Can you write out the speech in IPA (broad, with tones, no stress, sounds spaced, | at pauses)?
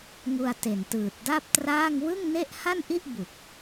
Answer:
ŋ u˧ a̯ t e˨˩ n t ɯː˨˩ t̚ d a˥˩ p̚ t r aː˥˩ ŋ w ɯ˥˩ ŋ n e˥˩ ʔ h a˥˩ n ʔ i˥˩ ʔ b u˨˩ k̚